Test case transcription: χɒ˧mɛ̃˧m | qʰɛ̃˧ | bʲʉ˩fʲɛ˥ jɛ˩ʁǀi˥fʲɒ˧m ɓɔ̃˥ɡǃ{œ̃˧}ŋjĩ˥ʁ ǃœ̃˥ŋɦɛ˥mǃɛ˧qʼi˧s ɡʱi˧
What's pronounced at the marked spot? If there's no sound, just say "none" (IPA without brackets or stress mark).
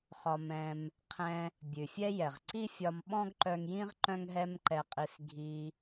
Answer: œ˧